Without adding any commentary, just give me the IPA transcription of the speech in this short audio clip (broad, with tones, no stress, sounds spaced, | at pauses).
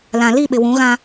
l ã˨ l i˦˨ ɓ ɪ˨ w ũ˨˦ ɣ ã˦